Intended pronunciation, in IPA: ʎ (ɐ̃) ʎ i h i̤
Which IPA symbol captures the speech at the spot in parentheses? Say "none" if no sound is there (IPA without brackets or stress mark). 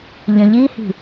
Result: ə̃